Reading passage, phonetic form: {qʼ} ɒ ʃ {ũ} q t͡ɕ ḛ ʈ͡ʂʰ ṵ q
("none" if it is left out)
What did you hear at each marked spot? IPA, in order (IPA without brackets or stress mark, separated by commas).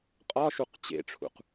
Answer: qʼ, u